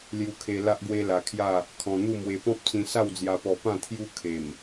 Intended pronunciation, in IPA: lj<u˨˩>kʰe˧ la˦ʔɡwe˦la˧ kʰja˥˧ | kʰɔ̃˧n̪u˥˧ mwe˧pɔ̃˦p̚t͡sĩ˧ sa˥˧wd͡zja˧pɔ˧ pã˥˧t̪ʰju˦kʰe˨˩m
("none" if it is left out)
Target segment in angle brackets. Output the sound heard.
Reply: u˧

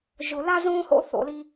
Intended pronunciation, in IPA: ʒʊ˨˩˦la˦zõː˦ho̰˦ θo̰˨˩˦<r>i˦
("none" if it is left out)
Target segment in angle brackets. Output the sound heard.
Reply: l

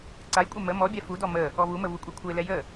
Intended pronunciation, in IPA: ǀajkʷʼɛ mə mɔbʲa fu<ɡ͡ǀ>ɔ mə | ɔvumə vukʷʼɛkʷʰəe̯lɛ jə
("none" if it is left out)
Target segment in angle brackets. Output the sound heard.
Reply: d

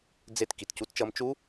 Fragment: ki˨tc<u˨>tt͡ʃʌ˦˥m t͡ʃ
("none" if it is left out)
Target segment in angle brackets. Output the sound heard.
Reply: u˦˥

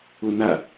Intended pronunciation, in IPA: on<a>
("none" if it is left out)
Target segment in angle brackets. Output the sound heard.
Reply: a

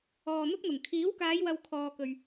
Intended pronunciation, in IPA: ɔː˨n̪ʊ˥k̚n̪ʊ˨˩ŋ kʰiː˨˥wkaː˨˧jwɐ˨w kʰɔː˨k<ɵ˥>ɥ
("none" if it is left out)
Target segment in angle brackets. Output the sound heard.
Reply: ɵ˨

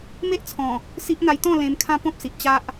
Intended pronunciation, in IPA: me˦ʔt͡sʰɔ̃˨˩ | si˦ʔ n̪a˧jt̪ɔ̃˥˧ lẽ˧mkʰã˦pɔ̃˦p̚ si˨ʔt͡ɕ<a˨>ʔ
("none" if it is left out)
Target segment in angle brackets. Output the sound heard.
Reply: a˦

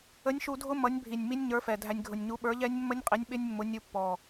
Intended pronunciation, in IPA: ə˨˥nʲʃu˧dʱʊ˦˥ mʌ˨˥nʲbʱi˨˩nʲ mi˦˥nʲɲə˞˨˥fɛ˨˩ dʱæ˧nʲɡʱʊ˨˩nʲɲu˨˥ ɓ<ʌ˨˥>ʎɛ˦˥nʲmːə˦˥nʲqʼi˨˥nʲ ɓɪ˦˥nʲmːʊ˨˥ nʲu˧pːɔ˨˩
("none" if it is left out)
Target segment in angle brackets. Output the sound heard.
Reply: ə˞˨˥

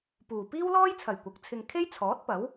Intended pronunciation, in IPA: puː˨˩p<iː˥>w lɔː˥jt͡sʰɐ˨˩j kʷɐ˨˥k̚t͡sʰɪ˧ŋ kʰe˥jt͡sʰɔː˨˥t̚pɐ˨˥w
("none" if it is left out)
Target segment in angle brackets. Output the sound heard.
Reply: iː˥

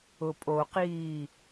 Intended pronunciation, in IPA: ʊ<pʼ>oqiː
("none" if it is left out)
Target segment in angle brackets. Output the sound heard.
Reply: pʼ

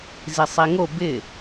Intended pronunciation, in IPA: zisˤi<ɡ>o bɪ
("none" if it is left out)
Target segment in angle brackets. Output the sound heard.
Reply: ŋ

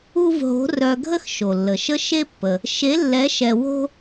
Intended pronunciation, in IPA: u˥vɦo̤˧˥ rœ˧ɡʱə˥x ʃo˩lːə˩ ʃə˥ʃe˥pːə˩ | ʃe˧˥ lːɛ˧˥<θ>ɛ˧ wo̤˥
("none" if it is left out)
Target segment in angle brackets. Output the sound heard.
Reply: ʃ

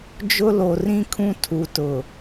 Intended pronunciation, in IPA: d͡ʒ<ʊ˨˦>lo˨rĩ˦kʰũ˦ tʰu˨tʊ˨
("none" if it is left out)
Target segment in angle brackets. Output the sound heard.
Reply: ʊ˦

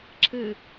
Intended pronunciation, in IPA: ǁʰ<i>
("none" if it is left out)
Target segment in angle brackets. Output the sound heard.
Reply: ɨ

